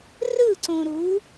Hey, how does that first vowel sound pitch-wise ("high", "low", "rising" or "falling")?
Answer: falling